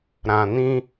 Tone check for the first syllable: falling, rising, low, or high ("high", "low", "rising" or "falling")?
low